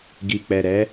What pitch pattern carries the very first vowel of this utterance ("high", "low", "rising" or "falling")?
low